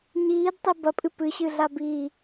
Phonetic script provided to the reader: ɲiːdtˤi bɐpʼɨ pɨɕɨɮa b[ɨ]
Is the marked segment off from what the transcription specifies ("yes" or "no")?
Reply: yes